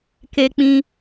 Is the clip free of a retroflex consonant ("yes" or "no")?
yes